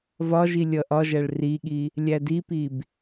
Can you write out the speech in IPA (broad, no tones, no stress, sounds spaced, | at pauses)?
v ɒ ʒ i lʲ ʌ ʔ ɒ ʒ æ ɭ r i ɠ i | lʲ æ d i p i b